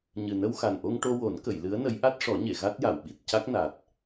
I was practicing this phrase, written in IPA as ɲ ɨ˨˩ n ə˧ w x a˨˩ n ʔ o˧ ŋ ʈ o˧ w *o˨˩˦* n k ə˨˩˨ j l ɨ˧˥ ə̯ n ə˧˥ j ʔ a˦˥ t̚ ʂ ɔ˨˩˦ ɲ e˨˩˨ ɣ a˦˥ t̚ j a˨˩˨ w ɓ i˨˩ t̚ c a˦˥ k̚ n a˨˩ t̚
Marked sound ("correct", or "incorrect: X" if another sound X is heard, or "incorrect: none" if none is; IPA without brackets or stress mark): correct